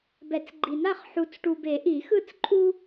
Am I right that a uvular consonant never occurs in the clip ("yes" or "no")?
no